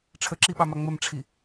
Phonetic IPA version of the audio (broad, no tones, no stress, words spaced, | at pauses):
ʈ͡ʂʰəǁiɓɑma ŋ͡məmʈ͡ʂʰi